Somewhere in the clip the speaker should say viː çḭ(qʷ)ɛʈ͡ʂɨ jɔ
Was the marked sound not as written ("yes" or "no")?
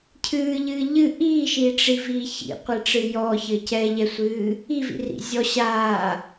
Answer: no